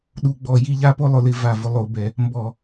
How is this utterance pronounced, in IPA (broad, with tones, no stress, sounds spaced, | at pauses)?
ɗ u˧˩˧ ɡ͡b ɔ˧˩˧ j i˦ ʎ a˦ p o˦ lˠ ʊ˧˩˧ l ɪ˧˩˧ v a˧˩ v ʊ˦ lˠ o˧˩˧ b ɛ˧˩˧ | m b ɔ˧˩˧